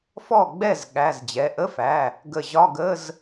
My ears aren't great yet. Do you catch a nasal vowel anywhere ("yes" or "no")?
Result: no